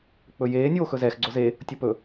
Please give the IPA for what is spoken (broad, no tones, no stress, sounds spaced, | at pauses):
k͡p ɵ j eː nʲ oː x ɵ z ɛ x ɡ͡ǀ o z e | tʲ o p ɵ